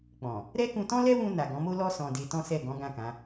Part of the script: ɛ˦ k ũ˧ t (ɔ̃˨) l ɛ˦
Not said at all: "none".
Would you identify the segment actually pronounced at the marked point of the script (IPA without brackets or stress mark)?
ɔ̃˦